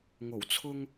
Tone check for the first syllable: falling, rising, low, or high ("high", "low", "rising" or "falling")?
low